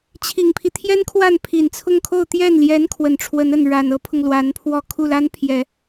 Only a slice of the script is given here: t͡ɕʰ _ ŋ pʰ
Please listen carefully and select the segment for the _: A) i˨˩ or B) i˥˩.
A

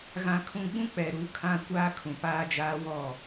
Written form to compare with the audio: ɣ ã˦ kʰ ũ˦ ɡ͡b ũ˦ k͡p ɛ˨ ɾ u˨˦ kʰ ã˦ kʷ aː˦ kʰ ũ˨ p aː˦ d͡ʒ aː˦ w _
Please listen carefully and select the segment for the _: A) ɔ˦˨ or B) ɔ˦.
A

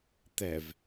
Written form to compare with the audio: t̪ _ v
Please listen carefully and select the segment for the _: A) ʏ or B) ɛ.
B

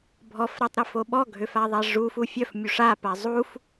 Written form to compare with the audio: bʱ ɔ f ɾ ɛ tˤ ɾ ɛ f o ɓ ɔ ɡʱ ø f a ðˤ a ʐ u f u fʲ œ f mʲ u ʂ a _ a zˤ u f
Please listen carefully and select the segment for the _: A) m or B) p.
B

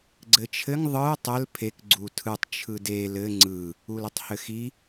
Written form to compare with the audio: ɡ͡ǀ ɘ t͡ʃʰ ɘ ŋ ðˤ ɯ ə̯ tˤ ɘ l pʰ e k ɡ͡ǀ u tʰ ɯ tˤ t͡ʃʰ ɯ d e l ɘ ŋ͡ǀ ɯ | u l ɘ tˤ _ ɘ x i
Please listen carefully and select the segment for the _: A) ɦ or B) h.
B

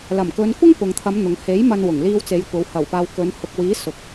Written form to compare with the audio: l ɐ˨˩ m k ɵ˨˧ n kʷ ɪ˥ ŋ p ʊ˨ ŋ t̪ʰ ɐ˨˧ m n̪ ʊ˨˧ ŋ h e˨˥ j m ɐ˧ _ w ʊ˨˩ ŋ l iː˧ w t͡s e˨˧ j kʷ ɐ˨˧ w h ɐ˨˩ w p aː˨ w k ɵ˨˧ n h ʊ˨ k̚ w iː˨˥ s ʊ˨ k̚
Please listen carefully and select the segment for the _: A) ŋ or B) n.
B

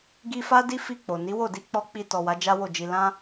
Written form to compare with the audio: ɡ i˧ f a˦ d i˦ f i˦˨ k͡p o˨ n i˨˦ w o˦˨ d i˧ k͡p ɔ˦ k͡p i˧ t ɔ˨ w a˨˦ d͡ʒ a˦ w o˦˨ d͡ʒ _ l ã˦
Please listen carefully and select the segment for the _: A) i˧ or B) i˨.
A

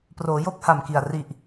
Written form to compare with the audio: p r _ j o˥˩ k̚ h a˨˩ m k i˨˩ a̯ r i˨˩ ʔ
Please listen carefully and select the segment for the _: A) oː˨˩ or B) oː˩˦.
B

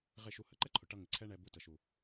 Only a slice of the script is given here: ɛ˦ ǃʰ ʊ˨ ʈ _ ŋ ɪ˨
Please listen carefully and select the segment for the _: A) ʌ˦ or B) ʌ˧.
B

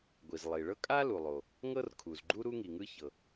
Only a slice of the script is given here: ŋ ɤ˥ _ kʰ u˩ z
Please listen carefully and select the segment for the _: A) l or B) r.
B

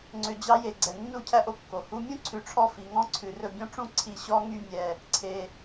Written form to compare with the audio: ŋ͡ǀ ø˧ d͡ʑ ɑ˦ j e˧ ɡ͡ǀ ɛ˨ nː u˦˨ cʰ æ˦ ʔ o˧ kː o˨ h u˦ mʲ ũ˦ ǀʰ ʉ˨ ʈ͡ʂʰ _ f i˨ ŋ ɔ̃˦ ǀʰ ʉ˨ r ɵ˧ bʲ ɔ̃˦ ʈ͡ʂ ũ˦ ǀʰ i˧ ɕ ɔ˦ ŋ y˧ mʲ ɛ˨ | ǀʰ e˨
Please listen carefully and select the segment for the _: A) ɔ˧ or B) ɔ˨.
A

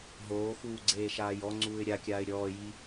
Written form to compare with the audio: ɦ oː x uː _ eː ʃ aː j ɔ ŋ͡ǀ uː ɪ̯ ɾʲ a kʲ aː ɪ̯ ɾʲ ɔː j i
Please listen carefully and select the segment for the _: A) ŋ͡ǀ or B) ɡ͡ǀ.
B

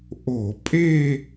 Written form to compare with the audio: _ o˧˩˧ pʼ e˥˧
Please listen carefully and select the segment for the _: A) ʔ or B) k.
A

